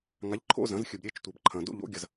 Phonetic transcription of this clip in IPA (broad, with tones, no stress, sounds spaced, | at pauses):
ŋ a˩˥ ʎ ǃʰ o̰˥˧ z ɐ̃˩˥ z xʲ ɨ˩ b ɾʲ e˥˧ t͡ʃ tʷ e˩ b ǃʰ ɐ̃˩ d o̰˥˧ ʎ o̰˩˥ ɡʲ ɐ˩ z